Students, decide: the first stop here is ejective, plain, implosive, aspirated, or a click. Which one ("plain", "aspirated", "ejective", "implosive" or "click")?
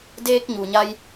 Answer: plain